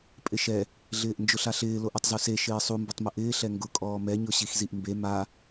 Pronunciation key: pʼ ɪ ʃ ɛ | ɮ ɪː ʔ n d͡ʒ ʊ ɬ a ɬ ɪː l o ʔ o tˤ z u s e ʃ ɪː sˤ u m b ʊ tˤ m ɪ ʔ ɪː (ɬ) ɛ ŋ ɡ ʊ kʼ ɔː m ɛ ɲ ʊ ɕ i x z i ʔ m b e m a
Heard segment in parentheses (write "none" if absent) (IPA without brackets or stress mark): ɬ